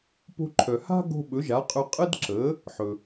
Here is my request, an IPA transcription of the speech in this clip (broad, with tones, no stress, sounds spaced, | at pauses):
p o̤˧ ǃʰ œ˩ h a̤˥ ɡ o̤˧ ɓ ɵ˩˥ ʒ a˩˥ qʼ ɵ˧ qʼ ə˥ d ǁ ə˩˥ | ħ ɵ˩